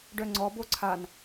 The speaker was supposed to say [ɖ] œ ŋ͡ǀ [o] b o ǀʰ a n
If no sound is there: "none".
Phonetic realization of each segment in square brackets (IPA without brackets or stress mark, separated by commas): ɖ, ɔ